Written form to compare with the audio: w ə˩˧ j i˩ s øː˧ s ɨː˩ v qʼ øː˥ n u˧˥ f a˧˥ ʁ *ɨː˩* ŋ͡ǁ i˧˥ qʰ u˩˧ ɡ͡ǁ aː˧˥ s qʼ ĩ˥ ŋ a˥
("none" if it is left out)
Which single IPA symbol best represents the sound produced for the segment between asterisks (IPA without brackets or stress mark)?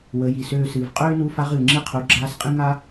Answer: ɨː˩